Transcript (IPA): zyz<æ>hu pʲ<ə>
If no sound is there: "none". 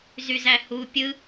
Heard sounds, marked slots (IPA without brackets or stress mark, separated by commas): æ, ɯ